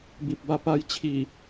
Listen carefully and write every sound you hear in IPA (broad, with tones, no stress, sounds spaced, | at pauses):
b i˨ p̚ b a˧ p a˧ j t͡ɕʰ i˨˩